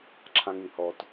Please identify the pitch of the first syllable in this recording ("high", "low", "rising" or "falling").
high